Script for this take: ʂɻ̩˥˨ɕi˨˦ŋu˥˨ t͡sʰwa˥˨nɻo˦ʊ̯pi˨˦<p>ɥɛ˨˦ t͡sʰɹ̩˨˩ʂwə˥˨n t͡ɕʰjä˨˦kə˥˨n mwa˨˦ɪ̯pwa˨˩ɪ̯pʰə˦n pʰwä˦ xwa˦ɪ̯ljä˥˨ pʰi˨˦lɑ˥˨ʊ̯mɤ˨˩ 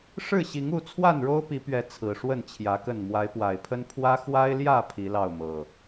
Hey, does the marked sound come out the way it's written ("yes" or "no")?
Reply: yes